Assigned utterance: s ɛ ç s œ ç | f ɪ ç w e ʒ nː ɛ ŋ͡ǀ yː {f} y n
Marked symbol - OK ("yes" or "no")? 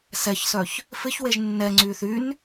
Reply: no